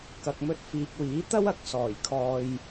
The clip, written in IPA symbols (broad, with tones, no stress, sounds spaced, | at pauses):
k ɐ˨ k̚ m ɵ˧ t̚ f iː˨ k̚ w iː˨˥ t̪ ɐ˥ w ɐ˨ k̚ s ɔː˨˩ j kʰ ɔː˨ j